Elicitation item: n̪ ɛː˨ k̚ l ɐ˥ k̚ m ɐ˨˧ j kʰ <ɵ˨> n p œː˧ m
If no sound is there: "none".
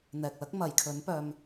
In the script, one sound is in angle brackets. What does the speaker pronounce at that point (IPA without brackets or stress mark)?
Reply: ɵ˨˥